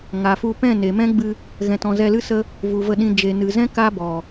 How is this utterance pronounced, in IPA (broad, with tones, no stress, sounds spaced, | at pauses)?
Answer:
ŋ a˨ f u˧ p ɛ̃˦˨ n e˨ m ɛ̃˦ ɡ͡b ɨ˧ | ɣ ɛ̃˨ t ɔ̃˨ z ɛ˧ l ɨ˦ s ə˦ | v u˨ v ə˧ ɗ ĩ˧ d͡ʒ e˨ n ɨ˨ z ɛ̃˦ k a˦ b ɔ˨